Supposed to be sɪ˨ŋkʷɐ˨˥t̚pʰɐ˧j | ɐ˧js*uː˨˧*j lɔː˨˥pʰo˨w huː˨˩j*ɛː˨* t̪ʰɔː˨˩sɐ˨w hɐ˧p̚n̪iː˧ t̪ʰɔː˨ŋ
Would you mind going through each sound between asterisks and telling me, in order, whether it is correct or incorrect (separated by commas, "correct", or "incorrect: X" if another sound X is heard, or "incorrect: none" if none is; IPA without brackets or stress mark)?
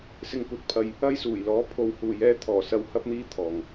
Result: incorrect: uː˨˩, incorrect: ɛː˨˥